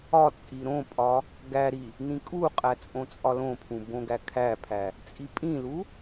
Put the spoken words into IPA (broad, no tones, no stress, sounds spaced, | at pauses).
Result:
ɒ t͡sʼ i ɾ õ pʼ ɒ | ɡ æ ɾ i | n ĩ kʼ u qʼ æ t͡sʼ õ t͡sʼ ɒ l õ pʰ ũ b õ ɡ æ kʰ æ pʰ æ | t͡sʼ i pʼ ĩ l u